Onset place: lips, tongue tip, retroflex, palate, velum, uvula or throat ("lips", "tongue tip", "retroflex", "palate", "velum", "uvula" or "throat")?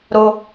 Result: tongue tip